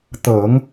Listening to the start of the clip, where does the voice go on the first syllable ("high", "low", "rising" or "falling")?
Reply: low